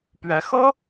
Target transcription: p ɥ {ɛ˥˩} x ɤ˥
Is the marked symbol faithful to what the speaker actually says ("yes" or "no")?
no